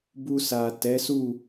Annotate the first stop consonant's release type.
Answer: plain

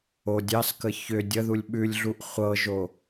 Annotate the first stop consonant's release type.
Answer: plain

